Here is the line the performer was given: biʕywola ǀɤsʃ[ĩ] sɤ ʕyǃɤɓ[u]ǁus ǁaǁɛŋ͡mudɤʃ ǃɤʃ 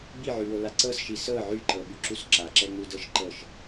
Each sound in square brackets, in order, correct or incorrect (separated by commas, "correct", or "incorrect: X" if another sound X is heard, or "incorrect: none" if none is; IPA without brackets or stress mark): incorrect: i, incorrect: y